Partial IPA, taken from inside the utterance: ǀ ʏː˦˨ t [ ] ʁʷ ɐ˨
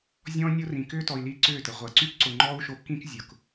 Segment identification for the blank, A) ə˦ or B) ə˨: B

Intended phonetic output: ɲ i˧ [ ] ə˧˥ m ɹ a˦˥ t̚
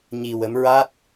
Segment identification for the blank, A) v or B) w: B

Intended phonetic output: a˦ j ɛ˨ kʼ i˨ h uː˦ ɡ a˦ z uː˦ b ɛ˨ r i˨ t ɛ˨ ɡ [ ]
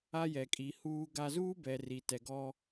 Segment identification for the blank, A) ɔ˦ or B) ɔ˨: A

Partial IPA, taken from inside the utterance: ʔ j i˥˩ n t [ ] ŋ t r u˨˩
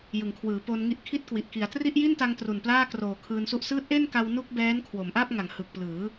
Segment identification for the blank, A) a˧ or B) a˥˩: A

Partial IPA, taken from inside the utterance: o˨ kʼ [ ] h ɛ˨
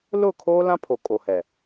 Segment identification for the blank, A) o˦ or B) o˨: B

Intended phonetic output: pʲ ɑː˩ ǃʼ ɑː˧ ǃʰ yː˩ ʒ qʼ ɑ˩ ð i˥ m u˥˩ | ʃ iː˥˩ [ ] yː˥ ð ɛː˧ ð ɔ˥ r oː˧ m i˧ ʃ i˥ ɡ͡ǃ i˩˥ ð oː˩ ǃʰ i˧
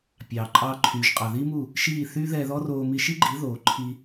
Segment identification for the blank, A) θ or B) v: A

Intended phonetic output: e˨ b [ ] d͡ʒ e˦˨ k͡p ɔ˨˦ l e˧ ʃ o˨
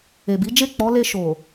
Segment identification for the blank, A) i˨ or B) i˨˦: B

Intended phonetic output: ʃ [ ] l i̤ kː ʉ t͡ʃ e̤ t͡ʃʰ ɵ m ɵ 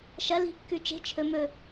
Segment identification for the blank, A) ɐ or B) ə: A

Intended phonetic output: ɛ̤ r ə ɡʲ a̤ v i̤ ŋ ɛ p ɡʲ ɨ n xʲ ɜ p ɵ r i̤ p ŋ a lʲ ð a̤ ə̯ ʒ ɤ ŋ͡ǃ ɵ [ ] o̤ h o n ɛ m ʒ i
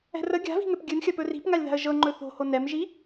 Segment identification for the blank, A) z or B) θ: B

